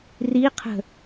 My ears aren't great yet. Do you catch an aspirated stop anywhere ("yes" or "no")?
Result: yes